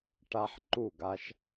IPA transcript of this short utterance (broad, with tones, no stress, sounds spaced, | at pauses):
ʈ a˧ ħ ǃ u˦˨ ɡ a˦ ʃ